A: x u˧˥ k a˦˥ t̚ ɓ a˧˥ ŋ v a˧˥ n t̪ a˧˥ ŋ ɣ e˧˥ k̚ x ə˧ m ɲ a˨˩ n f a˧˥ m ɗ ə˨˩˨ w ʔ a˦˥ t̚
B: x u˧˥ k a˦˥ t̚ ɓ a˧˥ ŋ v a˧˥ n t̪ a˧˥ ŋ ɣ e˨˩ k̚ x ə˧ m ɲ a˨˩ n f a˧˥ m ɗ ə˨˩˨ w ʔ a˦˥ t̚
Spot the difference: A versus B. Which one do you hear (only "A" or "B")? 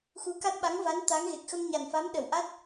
B